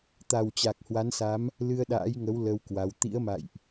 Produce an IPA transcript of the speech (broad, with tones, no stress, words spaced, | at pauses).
t̪a˨˩wt͡ɕa˨˩k̚hwa˨˦nsa˨˦m | lɨ˧ə̯ɗa̰ː˧˥jŋə˨˦w lə˧wkwa˨˦w t̪ḭ˧˥ə̯ma̰˧˨jʔ